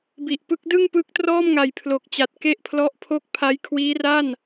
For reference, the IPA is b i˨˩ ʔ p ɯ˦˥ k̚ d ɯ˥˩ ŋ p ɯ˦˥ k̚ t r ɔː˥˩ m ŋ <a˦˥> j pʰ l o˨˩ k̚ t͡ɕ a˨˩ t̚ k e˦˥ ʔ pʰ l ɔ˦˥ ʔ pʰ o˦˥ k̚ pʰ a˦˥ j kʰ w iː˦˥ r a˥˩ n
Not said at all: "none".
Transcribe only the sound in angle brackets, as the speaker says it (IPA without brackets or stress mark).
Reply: a˨˩